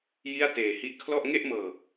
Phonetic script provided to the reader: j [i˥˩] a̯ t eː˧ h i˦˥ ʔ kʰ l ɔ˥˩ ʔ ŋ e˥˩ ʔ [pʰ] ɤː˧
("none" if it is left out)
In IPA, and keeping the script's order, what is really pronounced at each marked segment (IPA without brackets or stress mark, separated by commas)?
i˥˩, m